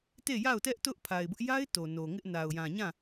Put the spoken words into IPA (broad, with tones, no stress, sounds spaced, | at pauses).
t e˦˨ j a˦˨ ʊ̯ t ɛ˦ ʔ t ʊ˦ ʔ pʰ a˨ ɪ̯ b ʊ˦ ʔ j a˦ ɪ̯ t o˨ n o˨ ŋ ɪ˦ ʔ n a˨ ʊ̯ j ã˨ ɲ ã˦˨